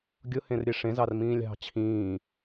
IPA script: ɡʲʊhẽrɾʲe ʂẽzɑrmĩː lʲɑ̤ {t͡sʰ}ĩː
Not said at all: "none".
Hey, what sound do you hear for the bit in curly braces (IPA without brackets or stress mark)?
t͡ɕʰ